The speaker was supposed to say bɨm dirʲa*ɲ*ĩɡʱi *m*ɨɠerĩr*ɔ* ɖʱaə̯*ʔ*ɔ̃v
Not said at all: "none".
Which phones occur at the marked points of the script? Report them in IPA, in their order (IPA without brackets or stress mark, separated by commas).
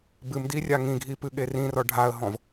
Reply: ŋ, p, ɔ, ɦ